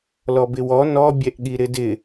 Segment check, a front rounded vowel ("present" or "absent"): absent